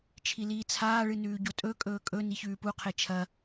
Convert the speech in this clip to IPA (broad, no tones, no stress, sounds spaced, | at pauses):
t͡ʃʰ i l iː t͡sʰ aː ɭ ɨ n ʉː ɟ o tʼ ɵ kʼ ɵː kʼ ɵ n i ç ʉː p u qʰ e t͡ʃʰ ɐ